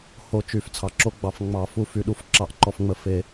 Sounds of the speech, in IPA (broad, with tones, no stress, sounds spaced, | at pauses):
h o˨˥ t͡ʃ y˨˩˦ f t͡sʰ ɑ˨ ǁ o˨˥ ɡ͡b ɑ˨˩˦ f ŋ͡m ɑ˨˩˦ f u˨ f y˨ ɗ u˨˥ f ǁ ɑ˨˩˦ ʔ ǃ ɔ˨ f ŋ͡m ə˨˥ f e˨˩˦